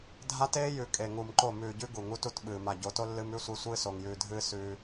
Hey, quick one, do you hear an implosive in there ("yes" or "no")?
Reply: yes